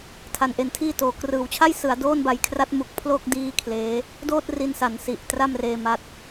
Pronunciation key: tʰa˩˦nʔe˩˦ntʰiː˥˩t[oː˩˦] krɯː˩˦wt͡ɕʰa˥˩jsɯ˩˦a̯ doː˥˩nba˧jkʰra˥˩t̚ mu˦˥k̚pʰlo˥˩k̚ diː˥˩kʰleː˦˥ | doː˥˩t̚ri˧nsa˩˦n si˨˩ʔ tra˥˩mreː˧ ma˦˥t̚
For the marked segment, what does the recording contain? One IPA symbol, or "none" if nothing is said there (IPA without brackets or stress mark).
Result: oː˩˦